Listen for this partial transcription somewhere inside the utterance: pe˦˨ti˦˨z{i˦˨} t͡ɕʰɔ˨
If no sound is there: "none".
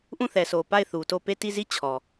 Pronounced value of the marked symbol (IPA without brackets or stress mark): i˦˨